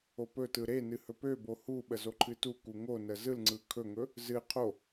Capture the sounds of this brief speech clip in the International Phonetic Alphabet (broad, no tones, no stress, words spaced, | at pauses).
opɵtɯ ɾenɨ hɵpøbo huɓə zoǃʰɨtuku ŋonə zɯlŋ͡ǀɯ kʰɵŋɵ | zɨ qʰo